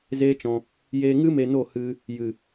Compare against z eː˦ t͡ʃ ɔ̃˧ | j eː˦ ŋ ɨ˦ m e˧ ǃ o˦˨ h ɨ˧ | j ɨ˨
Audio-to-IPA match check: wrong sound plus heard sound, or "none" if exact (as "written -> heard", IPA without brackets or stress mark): ǃ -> n